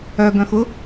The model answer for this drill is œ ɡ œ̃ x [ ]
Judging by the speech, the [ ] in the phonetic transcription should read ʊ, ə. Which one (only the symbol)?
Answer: ʊ